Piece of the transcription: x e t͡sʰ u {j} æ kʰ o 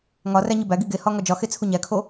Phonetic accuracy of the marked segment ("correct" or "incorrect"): incorrect